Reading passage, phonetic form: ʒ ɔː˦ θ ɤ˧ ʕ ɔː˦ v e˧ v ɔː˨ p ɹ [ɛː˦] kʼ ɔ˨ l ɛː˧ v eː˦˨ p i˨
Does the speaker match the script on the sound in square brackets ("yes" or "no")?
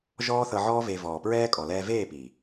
yes